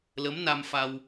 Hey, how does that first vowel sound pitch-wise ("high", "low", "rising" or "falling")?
rising